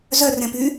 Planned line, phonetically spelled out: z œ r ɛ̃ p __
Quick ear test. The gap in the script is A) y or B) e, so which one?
A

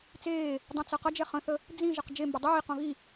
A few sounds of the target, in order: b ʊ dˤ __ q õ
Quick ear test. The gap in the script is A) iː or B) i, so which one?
A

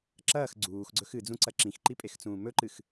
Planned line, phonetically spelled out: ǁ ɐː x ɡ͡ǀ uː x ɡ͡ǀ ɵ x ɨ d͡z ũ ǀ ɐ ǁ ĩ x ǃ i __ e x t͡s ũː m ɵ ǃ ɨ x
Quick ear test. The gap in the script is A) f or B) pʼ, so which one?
B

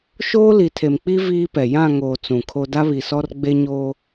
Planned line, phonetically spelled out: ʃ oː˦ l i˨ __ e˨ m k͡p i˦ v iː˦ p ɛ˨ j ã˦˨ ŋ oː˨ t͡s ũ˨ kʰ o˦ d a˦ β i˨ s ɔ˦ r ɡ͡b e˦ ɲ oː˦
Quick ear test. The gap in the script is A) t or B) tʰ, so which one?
B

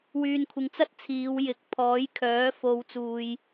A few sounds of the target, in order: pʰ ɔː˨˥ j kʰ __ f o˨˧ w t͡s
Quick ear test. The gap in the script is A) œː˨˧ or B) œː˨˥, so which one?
B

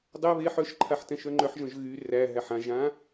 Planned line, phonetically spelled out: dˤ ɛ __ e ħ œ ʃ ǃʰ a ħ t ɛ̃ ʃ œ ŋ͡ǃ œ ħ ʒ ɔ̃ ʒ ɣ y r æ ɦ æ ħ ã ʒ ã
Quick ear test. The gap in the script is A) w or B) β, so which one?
B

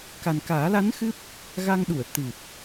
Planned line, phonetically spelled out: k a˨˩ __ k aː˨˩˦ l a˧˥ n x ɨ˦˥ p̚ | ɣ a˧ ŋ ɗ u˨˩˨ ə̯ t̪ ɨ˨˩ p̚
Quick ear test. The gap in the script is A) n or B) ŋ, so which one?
A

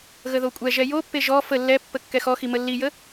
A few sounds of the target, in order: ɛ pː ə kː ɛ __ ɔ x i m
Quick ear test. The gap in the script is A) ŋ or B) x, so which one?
B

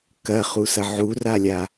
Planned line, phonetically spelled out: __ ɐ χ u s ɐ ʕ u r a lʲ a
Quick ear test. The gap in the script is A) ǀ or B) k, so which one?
B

